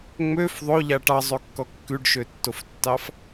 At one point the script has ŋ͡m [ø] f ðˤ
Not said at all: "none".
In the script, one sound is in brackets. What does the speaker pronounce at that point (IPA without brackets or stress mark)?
ø